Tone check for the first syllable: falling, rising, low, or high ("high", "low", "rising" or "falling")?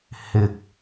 low